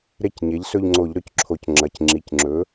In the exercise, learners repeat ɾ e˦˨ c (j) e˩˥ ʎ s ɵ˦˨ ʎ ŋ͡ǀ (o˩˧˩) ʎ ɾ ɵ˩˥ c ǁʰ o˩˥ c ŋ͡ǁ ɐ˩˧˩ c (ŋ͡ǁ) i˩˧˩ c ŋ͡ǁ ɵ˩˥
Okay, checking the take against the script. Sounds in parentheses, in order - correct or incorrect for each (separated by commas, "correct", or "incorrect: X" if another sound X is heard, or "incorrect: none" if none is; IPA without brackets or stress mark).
incorrect: ɲ, incorrect: o˧˩˧, correct